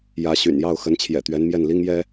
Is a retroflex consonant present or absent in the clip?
absent